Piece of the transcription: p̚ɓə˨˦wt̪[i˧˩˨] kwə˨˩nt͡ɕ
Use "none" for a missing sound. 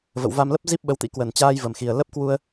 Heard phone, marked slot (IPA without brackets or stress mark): ḭ˧˥